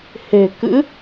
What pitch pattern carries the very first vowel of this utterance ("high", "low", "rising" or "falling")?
low